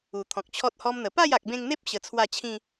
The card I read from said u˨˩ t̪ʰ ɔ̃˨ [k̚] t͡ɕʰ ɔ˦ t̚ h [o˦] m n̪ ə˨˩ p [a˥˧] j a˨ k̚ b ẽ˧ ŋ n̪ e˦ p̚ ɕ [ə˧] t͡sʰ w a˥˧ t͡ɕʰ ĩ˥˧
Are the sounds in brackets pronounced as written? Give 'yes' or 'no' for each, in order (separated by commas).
yes, no, yes, yes